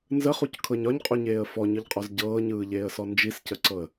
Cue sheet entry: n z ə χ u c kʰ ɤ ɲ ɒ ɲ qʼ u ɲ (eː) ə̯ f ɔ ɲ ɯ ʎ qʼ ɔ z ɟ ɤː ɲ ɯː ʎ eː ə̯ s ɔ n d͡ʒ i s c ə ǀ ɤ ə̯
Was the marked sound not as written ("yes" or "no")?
no